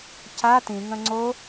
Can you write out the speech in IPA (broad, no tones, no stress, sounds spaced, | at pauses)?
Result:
c a t ĩ ŋ ə̃ ŋ͡ǀ o